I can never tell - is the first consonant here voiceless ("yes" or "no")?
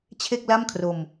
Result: yes